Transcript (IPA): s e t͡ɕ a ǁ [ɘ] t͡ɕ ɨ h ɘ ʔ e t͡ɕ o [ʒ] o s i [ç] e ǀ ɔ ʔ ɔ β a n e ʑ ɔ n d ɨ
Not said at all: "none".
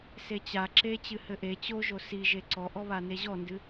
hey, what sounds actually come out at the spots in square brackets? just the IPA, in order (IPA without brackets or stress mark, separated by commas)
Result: e, ʒ, ʒ